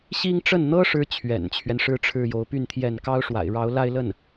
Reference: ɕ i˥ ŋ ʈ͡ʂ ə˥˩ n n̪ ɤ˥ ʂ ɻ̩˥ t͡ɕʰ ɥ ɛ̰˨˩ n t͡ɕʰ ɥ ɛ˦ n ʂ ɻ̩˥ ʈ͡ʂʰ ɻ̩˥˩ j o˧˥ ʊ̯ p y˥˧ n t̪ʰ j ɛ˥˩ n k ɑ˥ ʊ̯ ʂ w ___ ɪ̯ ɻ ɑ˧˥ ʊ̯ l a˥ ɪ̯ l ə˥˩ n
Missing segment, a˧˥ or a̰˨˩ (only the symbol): a̰˨˩